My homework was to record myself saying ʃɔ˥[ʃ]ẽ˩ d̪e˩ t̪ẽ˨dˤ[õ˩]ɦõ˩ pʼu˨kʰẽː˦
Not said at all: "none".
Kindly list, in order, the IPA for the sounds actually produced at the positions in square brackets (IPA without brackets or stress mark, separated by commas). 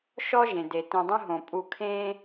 ʒ, õ˦